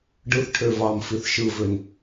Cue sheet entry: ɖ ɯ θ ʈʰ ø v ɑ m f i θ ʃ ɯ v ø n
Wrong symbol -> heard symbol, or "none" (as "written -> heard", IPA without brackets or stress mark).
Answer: none